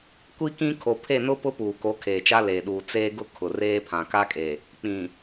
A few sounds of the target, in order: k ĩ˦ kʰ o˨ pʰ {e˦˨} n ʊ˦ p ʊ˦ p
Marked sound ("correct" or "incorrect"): correct